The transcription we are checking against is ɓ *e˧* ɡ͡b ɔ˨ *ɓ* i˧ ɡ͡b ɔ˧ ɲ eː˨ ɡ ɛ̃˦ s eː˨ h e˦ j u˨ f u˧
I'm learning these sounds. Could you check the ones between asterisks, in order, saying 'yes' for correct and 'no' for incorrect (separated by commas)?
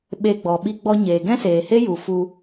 yes, yes